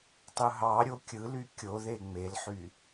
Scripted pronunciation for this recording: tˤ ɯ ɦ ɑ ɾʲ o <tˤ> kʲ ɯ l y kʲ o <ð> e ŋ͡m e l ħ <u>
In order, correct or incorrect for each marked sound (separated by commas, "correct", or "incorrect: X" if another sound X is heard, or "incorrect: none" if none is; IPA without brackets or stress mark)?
incorrect: none, correct, incorrect: y